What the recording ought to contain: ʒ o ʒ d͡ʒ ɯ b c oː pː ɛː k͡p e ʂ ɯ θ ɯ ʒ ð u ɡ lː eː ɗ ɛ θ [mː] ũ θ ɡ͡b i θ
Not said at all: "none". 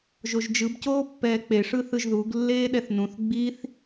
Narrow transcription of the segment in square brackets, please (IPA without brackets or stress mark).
n